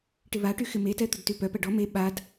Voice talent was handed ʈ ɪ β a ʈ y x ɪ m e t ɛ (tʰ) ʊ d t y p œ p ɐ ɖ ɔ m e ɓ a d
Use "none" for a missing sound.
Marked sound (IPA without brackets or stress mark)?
t̪